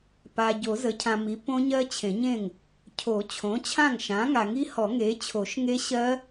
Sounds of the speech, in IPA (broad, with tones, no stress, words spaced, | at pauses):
pa˨ ɟo˨˩˦zə˩˥cʰã˨mi˩˥ põ˦˥ɲɜ˦˥t͡ɕʰẽ˨˩˦ɲẽ˥˩ŋ | cʰo˨˩˦t͡ɕʰõ˩˥t͡ɕʰã˥˩ŋ ʃã˩˥ŋa˨ŋi˦˥hɔ˨˩˦ ŋe˩˥ t͡ɕʰo˨˩˦ʃŋe˦˥ ɕɜ˦˥